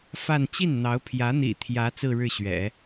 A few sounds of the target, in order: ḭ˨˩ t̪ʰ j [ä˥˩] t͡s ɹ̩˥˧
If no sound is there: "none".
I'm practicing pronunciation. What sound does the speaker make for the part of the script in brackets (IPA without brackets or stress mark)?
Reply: ä˧˥